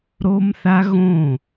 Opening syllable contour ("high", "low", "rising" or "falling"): high